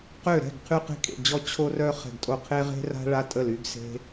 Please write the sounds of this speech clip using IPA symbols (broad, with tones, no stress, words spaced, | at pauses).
qø˦˨ɾɛ̤˦˨ɡ qʰy˦qe̤˦kʼḛ˦˨d͡ʑɔ˦ t͡ɕʰo˦rœ˦ χɛ̤˦˨ɡtʼo˦ qʰe˦ ʁe̤˦ra̤˦ ɭa˦tʼə˦˨ly˦ɡ se̤˦